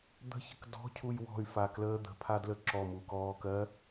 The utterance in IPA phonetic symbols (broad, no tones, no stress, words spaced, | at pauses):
d̪ə̤çə̤k dɔ̤cʰuj wɔ̤y̯fakləː d̪ə̤pʰadlə ǁɔmukɔːkɜ